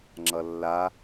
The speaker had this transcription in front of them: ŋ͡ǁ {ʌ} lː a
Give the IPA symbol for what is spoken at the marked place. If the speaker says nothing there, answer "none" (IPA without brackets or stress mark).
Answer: ʌ